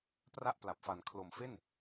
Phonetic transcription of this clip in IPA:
pra˥˩ʔpla˨˩p̚fa˨˩n kʰlo˩˦m fe˥˩n

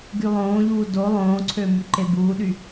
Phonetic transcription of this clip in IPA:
ɡylˠõːʎuː do lˠõːǀʰø myǃebuːɗy

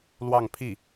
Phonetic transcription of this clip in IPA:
lwɑ˥˧ŋpʰi˥˩

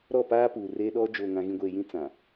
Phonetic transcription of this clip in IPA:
ɾɔ˦˨paː˦puː˨ reː˦ɗɔ˦ d͡ʒoː˨ŋã˨ɣĩ˨ɡʷeː˨ jĩ˦t͡sã˨

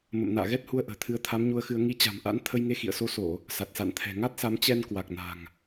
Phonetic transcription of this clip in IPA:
mə̰˧˨mna̰ː˧˨ɣɛ˦˥t̚ hu˧ə̯ʔə̤ː˨˩t̪ʰɨ˨˦ə̯ t̪ʰa˨˦mɲu˧ə̯xɨ˧ə̯ ŋi˨˦ t͡ɕa̤˨˩mʔa̰˧˥n t̪ʰə˧jŋe˧ xḭ˧˨ə̯so˧so˧˩˨ | sa˨˩t̚sa̰˧˨nt̪ʰɛ̤˨˩ ŋa˦˥t̚sa˨˦m t͡ɕɛ˧n kwa˨˩k̚na̤˨˩ŋ

